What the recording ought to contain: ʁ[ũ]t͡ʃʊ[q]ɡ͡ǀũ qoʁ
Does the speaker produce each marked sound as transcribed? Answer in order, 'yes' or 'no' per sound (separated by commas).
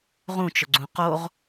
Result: yes, no